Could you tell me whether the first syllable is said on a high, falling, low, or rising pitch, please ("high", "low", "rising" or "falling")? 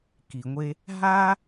low